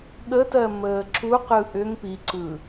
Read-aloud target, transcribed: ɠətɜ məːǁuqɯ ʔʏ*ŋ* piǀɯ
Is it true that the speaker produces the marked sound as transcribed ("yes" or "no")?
yes